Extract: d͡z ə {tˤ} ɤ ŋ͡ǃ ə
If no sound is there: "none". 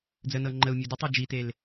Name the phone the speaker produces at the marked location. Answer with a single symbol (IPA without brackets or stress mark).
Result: n